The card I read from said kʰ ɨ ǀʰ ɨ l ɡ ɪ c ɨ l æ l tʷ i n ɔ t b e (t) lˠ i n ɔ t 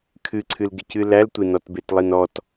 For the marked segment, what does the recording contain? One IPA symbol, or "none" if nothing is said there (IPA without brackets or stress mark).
t